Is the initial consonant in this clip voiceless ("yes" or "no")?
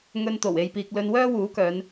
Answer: no